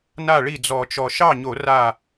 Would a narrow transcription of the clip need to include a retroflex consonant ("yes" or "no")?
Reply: yes